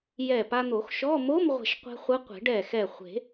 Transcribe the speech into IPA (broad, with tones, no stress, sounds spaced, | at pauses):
j ɛ˧˩ p a˧ n̪ o˨˩˦ x ʃ ɔ˧˥˧ m o˧˥˧ m ʁʷ ɛ̤˧˩ ʃ qʷ ɛ̤˧ χʷ ɯ˧˥ qʷ e̤˨˩˦ ɖ ɛ˧˩ x ɛ˧˩ χʷ e̤˨˩˦